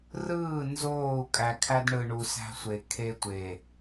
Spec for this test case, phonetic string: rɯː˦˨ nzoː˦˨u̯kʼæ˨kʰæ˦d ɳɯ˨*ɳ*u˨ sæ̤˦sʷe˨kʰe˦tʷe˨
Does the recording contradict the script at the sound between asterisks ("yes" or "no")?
no